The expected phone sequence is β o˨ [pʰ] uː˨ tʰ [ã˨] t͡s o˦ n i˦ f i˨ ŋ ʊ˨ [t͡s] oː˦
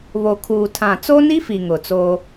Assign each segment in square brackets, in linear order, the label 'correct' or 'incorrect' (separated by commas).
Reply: incorrect, correct, correct